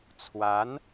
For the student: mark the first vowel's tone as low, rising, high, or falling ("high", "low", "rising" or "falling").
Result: rising